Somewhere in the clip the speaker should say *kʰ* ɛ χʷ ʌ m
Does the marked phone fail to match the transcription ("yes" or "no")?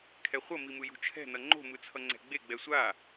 no